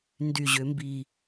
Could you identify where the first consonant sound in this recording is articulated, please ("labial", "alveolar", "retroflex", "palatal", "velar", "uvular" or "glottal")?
alveolar